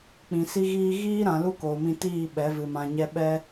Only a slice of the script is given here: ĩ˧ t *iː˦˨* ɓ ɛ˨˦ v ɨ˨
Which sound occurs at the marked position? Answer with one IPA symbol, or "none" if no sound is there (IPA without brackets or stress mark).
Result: iː˦˨